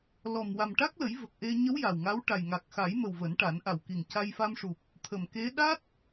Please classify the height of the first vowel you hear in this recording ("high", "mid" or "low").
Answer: mid